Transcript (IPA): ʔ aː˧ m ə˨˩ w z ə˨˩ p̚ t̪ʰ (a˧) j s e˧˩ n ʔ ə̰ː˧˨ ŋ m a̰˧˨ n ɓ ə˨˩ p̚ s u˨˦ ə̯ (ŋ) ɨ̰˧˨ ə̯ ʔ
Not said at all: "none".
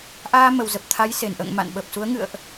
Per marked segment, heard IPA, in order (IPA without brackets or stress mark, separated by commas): a˨˦, ŋ